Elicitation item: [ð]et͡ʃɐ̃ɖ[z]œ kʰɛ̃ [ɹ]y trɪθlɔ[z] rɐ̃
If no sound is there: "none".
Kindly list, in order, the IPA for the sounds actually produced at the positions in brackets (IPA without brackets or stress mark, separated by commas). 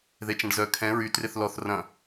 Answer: ð, z, ɹ, θ